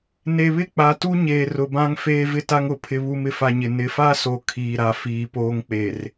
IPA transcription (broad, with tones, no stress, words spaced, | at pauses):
ne˨βɪ˦˨k͡pa˨tu˦ ɲeː˨rʊ˨bã˦ŋ feː˦vɪ˦ta˦ŋʊ˨ pʰɪ˨βu˨mɪ˨fa˨ ɲɪ˨ nɪ˨fa˦so˨ kʰiː˨ ɾa˨fiː˨poː˦ŋ k͡pe˨r